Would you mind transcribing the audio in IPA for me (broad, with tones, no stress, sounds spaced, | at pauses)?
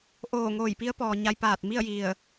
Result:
ʔ oː˧˩ ŋ oː˧˩ j p i˧˥ ə̯ p ɔː˩ ɲ a˧ j p aː˧˩ t̚ m i˥˨ ə̯ j i˧˩ ə̯